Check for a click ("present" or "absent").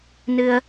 absent